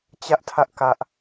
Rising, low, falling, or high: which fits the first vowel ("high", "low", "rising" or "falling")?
high